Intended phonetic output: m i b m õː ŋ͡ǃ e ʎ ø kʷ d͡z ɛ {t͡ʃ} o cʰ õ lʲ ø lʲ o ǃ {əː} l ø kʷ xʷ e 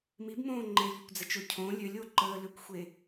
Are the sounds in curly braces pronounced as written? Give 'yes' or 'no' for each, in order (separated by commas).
yes, yes